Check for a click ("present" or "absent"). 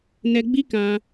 absent